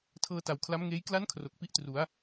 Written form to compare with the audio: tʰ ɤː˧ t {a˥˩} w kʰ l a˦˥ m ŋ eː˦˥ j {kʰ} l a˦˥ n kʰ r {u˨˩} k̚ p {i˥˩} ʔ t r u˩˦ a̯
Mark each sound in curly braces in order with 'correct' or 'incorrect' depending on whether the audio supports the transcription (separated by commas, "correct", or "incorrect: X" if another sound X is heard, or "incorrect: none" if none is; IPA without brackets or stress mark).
incorrect: a˨˩, incorrect: k, incorrect: o˨˩, correct